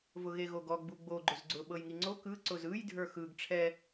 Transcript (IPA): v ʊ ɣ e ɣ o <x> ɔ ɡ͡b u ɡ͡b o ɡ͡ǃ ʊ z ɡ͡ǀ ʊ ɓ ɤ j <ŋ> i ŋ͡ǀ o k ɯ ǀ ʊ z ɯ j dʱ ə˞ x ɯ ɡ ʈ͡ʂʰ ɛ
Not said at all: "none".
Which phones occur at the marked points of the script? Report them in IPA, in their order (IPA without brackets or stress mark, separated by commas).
ɡ, ŋ